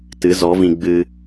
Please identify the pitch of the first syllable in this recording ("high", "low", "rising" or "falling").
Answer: rising